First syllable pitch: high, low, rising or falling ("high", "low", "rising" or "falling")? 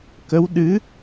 rising